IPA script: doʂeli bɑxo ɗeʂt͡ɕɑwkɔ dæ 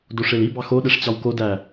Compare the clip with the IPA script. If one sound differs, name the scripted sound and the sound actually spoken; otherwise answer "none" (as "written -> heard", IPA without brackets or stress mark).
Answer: ɔ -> o